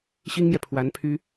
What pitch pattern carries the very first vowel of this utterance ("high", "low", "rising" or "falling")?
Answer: high